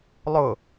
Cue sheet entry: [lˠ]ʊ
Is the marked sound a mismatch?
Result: no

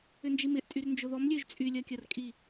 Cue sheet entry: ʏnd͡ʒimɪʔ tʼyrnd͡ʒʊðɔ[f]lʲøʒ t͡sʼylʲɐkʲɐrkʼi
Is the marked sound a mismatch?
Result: yes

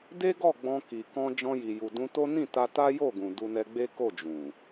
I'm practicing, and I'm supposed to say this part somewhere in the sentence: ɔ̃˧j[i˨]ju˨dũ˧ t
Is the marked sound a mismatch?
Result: no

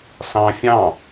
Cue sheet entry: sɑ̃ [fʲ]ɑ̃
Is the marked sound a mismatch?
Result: no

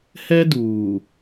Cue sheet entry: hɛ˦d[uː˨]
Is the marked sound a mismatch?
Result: no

